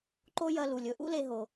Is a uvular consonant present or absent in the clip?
absent